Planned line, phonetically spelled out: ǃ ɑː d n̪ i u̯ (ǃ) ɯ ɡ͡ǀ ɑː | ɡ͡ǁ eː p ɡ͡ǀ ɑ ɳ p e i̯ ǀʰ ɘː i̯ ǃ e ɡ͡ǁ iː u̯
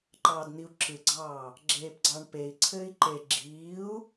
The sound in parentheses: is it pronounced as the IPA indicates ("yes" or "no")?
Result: no